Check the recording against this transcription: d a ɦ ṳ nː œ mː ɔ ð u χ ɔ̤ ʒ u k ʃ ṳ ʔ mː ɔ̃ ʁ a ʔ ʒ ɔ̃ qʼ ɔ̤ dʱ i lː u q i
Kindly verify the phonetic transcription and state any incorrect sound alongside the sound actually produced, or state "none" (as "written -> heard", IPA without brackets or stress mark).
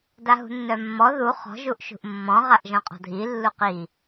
k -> ʔ